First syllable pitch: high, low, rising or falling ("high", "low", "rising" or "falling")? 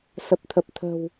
low